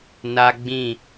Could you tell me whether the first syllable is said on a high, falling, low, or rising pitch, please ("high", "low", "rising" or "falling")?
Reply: high